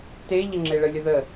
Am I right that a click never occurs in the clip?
no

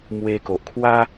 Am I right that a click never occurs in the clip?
yes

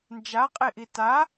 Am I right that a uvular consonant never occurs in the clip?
no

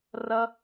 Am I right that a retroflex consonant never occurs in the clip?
yes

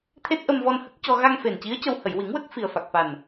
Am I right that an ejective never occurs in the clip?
yes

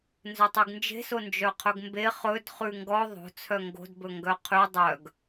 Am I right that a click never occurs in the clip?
yes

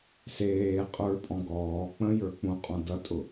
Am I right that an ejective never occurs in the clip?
no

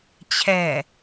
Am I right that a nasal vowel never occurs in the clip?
yes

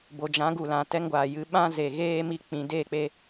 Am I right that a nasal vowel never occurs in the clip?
no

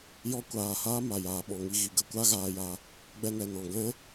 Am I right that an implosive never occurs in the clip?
no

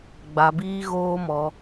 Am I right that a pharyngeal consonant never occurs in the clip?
yes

